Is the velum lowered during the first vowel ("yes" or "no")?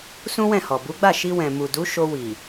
yes